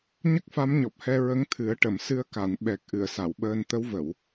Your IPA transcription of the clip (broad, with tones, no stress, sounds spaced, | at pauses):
ɲ ə˦˥ k̚ f a˧˥ m ɲ ɔ˨˩ p̚ h ɛ˧ ɹ ə˧˥ ŋ t̪ʰ ɨ˨˩˦ ə̯ ʈ ə˨˩˨ m s ɨ˧ ə̯ k a˨˩˨ n ɓ ɛ˨˩ k̚ ʔ ɨ˨˩˨ ə̯ s a˨˩˨ w ɓ əː˧ n t̪ ə˧˥ w v ə˨˩˨ w